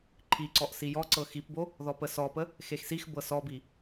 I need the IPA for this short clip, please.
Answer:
ǃʰ i ǀ ɔ ʔ s i j ɔ ǀ ɤ x i p b o | ð ɔ p ə s ɔ p ə | x e x s i x b ɤ s ɔ b i

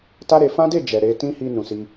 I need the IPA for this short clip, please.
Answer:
t a˦ ɾ e˧ f ã˦ d e˦˨ d͡ʒ ɛ˨ ɾ e˧ t ĩ˦ h i˧ n ũ˨ s i˧

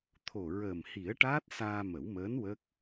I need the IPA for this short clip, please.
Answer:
t̪ʰ o˨˩ ɹ əː˨˩ m h i˨˩˦ ə̯ ʈ aː˦˥ t̚ s aː˧ m ə˨˩˦ w m əː˧˥ n w ə˦˥ k̚

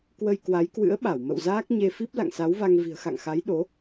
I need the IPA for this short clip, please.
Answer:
k w ə˧ j k w a˨˦ j k w ɨ̰˧˥ ə̯ ɓ a˧˩ w m ə̰˧˨ w z aː˦˥ k̚ ɲ e˧ f i˦˥ p̚ l a̰˧˨ ŋ s a˨˦ w v a˧ ŋ v i̤˨˩ ə̯ x a̰˧˨ ŋ x a˨˦ j ɗ o˨˦

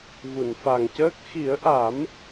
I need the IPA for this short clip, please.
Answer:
v u˨˩˨ n f a˨˩ ŋ c əː˦˥ k̚ x i˨˩˦ ə̯ ʔ a˨˩˦ m

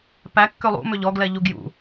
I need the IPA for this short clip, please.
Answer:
p æ kː ø lˠ ṵ m ø ʎ ɔ ɡ l ɛ ʎ u ɡ j ṵ

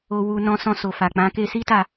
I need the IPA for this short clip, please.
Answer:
o˧ w u˧ n ɔ̃˧ s ɔ̃˧ s o˨ f a˨ k͡p ã˨˦ k e˧ s i˦ t a˦˨

